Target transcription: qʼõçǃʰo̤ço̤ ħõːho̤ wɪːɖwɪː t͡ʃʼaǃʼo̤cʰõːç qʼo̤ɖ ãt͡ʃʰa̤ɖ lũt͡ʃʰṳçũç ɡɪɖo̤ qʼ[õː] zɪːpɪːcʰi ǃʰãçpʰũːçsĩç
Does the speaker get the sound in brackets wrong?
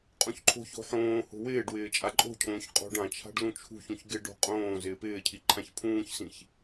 no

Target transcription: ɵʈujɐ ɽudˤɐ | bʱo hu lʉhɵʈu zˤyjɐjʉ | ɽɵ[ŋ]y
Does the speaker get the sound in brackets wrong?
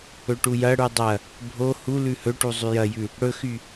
yes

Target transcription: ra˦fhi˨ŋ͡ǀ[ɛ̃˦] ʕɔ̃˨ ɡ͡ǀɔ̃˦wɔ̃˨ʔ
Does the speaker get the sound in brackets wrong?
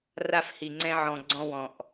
no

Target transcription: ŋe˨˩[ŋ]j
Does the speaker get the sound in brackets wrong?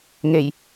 yes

